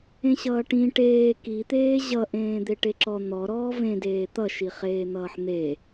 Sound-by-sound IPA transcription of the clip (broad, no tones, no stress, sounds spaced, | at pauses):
ẽ ɕ ʌː ʈ ĩ ʈ eː k i t̪ eː ʑ ʌ ʔ ẽː d̪ e ʈ e ǁ ɔ n̪ ɔ ɾ ɔː v ẽ d eː t̪ ʌ ʃ i χ eː n̪ ʌː ħ n̪ e